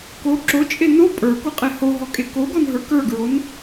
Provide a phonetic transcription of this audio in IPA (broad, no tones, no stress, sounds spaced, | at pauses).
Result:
k o ǁ o t͡ʃʼ e n o pʼ ə˞ k o qʼ e h o ɦ ɔ kʼ e k o ɡ ɔ n ɦ ə˞ k ə˞ ɡ ɹ o n